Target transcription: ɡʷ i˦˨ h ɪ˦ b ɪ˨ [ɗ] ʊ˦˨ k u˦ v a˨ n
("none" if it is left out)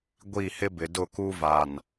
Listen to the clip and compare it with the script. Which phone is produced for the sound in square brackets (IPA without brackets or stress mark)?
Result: d